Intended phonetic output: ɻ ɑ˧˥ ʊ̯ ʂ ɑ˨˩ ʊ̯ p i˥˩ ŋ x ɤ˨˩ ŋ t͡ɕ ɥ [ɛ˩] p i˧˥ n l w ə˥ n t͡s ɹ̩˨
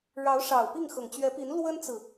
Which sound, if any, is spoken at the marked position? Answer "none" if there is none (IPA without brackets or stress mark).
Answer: ɛ˧˥